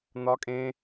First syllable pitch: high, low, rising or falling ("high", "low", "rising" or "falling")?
high